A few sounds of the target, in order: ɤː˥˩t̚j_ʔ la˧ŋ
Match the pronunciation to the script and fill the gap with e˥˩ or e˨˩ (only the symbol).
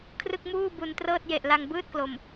e˨˩